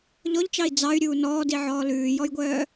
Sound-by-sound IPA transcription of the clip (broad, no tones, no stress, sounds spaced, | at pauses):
ʎ ɔ ʎ t͡ʃ ɑ i̯ d͡z ɑ y̯ ɾʲ uː n ɔː d i ʕ ɔː l ʉː j ɔ j ɡʷ œː